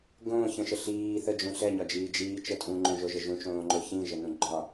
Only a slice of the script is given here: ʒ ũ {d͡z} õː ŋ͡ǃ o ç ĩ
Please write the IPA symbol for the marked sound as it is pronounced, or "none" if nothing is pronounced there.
t͡ʃ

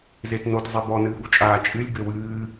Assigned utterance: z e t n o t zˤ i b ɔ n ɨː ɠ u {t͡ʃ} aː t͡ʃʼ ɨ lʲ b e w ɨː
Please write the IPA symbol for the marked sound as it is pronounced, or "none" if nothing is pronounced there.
t͡ʃʼ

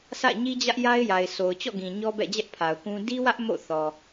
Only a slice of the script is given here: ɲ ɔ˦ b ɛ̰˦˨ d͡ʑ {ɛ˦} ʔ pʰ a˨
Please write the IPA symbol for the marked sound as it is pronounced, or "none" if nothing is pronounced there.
ɛ˦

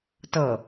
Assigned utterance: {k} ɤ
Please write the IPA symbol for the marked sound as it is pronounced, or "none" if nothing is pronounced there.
t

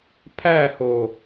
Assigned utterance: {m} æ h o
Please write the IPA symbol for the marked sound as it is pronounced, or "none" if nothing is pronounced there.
pʰ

